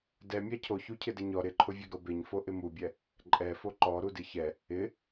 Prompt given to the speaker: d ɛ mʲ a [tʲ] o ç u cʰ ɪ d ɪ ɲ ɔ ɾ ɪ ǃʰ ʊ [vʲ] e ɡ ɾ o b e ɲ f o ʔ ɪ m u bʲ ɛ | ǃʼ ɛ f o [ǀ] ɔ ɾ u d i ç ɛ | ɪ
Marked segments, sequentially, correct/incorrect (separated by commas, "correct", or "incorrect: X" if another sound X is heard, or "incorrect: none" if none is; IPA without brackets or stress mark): incorrect: cʰ, correct, incorrect: ǃ